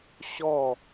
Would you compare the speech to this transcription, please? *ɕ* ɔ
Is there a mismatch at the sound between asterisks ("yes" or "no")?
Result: no